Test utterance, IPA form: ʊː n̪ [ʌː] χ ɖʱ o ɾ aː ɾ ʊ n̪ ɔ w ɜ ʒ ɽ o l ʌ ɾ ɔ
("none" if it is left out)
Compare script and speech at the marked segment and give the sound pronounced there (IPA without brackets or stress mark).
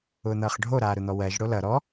ʌː